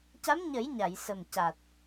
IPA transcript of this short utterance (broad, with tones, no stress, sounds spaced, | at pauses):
c a˧˥ m ɲ ə˨˩˦ j ɲ a˨˩˨ j s ə˨˩ m c a˨˩ t̚